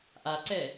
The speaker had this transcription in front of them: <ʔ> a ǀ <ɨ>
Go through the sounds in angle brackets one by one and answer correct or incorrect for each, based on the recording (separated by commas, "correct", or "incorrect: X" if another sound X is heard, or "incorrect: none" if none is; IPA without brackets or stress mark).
correct, incorrect: ɛ